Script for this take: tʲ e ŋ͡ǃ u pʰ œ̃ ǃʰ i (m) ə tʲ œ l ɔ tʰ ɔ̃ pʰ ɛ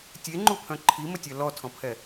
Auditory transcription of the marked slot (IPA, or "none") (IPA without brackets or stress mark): m